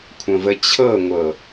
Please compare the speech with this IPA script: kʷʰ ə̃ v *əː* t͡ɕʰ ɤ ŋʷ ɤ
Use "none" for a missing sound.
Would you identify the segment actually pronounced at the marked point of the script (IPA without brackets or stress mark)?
ə